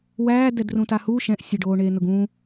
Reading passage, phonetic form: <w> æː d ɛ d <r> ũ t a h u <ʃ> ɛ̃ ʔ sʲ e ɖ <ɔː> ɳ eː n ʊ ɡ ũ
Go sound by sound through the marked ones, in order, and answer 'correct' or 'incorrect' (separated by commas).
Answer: correct, correct, correct, incorrect